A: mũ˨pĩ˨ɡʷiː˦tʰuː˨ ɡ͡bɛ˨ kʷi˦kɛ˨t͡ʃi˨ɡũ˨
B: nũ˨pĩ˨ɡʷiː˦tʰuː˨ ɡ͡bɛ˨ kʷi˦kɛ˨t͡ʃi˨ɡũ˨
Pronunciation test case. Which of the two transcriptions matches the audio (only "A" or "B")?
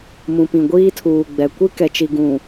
A